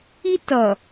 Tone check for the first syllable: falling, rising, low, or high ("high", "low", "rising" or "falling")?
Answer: high